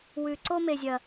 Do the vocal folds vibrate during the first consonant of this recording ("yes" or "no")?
yes